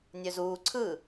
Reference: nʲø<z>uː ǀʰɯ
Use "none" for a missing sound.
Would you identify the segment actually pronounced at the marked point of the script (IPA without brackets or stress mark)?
z